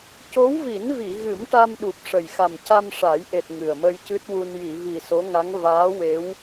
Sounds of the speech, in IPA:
c o˧˥ w v i˨˩˦ n v i˨˩˨ ɣ ɨ˨˩˦ m ʈ a˧ m ɗ u˨˩ p̚ ʂ ə˨˩ j x a˨˩ m c a˧ m ʂ a˨˩˦ j ʔ e˨˩ t̚ ŋ ɨ˨˩ ə̯ m ə˧ j c ɨ˦˥ t̚ w u˧ n j i˨˩˨ v i˨˩ s o˧˥ ŋ a˧˥ ŋ v aː˧˥ w e˧˥ w

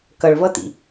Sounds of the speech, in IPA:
k ʌ ɭ v ʌ t ḭ

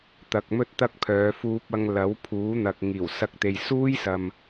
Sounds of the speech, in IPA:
t̪ ɐ˨ k̚ m ɵ˥ t̚ t̪ ɐ˥ k̚ pʰ œː˨˧ f uː˧ p̚ ɐ˧ ŋ l ɐ˨˥ w pʰ uː˨˥ n̪ ɐ˨ k̚ ŋ iː˨˩ w s ɐ˧ k̚ t̪ e˨ j s uː˥ j s ɐ˨ m

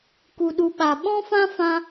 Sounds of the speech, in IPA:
k u˨ ɗ u˨ ɓ a˨ ɓ ɔ̃˦ f ã˦ f ã˦

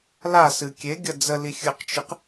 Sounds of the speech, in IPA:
l a s ɨ kʲ e ɡʲ ɐ d͡z ə l i xʲ ɨ q t͡ʃ ɨ q

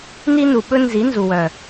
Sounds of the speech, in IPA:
n i˦ n u˨ ɓ ɵ˦ n z i˨˦ n z u˨ w œ˨

